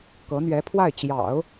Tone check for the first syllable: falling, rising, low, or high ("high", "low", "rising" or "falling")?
rising